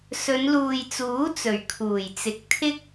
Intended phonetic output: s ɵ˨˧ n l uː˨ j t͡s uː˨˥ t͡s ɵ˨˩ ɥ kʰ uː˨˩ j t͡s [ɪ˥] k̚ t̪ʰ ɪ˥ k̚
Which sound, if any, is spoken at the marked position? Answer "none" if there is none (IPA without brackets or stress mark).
ɪ˨